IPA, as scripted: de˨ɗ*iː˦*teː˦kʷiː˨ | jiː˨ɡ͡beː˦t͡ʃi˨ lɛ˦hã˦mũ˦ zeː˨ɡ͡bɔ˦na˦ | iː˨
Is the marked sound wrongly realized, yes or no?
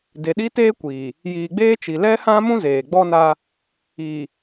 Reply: yes